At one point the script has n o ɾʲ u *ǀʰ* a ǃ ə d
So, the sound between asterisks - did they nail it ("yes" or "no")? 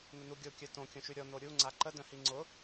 no